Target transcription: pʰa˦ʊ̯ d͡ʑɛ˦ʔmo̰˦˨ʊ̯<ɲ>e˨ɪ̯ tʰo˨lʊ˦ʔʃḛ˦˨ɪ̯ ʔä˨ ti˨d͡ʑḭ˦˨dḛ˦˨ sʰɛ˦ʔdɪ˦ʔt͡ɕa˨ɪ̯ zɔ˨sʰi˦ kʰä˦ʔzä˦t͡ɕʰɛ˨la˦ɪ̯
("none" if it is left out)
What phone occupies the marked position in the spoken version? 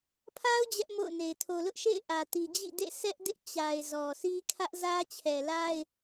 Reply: n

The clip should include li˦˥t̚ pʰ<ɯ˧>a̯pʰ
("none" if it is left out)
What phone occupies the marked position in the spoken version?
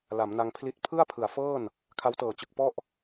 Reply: ɯ˥˩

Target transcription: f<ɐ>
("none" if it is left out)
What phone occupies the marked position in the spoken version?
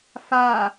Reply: a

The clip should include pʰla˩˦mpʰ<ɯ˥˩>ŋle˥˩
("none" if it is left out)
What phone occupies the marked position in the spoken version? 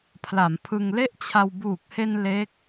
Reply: ɯ˧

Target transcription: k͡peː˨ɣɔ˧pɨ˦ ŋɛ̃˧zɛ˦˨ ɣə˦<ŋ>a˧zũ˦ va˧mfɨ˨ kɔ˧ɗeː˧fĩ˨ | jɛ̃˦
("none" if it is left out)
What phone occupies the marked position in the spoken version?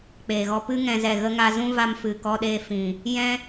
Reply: ŋ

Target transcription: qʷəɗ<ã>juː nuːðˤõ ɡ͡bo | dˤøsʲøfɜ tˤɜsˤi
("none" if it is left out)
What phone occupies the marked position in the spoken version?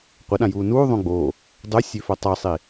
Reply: ã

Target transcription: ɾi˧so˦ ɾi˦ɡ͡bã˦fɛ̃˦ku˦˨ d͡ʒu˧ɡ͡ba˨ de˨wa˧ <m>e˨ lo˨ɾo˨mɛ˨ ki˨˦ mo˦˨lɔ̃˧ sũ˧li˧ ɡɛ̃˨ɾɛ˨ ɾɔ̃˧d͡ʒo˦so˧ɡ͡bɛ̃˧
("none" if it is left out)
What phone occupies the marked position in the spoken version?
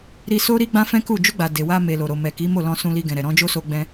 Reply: m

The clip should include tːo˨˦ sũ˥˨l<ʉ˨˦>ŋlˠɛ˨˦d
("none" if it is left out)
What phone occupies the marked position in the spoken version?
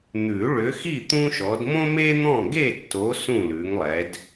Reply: ʉ˨˦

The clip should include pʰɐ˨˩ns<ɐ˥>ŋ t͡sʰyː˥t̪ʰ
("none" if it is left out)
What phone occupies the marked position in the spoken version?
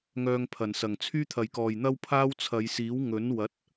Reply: ɐ˨˩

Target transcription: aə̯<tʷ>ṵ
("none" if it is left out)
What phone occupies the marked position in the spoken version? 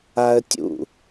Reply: tʲ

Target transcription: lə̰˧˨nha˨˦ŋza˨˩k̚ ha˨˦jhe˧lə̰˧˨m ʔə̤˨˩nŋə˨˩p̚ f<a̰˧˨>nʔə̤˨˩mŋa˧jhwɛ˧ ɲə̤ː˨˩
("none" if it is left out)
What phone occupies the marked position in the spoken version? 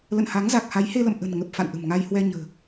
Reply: a̰˧˨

